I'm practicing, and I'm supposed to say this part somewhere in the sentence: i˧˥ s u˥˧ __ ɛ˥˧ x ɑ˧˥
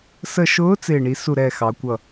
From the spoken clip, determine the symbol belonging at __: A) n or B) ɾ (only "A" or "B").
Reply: B